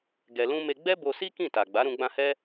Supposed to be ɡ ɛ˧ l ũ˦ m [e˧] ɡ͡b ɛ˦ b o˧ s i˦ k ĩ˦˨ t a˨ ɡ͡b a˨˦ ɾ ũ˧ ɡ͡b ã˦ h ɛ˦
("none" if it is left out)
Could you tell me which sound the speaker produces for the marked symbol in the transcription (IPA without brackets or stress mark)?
e˧